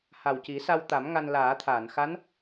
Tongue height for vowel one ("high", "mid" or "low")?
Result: low